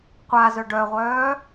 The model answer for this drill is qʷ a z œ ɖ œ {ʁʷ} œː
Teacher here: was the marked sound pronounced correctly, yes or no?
yes